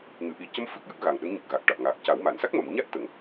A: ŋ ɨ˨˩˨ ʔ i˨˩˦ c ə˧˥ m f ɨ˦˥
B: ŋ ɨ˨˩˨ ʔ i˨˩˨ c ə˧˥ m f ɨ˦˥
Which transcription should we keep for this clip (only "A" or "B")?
A